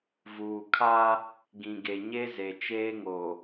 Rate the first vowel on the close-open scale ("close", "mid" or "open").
close